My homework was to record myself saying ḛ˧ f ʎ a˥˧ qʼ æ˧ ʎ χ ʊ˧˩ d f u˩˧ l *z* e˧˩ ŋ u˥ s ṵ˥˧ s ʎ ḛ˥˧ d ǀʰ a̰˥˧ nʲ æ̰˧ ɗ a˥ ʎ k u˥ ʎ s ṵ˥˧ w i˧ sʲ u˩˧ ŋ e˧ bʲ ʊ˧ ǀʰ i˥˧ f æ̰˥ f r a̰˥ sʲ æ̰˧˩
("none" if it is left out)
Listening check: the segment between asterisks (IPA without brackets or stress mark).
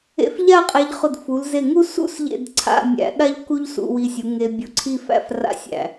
z